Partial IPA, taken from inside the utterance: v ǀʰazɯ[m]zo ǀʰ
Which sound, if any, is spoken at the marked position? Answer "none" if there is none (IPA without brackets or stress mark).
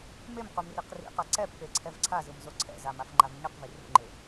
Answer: m